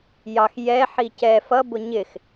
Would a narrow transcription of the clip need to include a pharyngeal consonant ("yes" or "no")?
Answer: yes